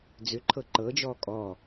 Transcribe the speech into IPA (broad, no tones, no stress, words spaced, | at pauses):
d͡zʏǃʰɤ ǃɤd͡ʒɔː kʼɔ